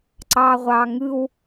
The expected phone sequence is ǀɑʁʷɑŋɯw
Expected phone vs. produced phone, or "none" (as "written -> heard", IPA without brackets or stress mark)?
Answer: none